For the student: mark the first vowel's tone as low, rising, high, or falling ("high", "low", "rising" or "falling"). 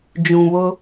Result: low